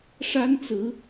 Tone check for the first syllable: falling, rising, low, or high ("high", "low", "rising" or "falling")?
high